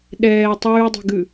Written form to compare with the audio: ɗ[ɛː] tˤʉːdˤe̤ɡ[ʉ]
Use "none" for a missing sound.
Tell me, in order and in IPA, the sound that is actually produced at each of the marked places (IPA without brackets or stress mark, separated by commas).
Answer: ɛː, ʉ